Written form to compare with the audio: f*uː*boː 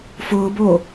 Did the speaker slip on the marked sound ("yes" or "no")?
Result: yes